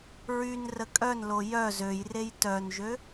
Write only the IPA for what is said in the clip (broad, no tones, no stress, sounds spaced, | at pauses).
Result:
ɹ y n r ə kʼ œ n l o j œ z ø j r e j t œ n ʒ ø